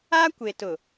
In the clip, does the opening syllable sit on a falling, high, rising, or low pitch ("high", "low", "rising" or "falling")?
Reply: high